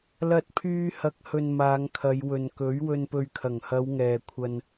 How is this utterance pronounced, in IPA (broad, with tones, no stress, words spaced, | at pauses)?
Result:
lɐ˧t̚pʰyː˧hɐ˨˥k̚ hɵ˨n maː˨˧ŋkʰɐ˨˧j wɵ˨nkɵ˨˥ɥwɵ˧n pɵ˨ɥkʰɐ˨˩ŋhɐ˨˧w ŋɛː˨kʷʰɐ˧n